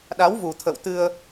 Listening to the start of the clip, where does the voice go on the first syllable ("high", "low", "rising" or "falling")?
rising